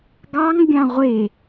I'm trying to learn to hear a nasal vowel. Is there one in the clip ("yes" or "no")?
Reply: yes